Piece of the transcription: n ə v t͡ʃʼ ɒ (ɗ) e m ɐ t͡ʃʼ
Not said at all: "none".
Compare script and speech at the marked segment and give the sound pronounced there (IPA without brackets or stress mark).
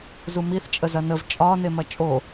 n